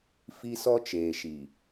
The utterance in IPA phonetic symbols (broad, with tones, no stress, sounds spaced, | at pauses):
f i˦ s ɔ˦ t͡ʃ eː˨ ʃ i˨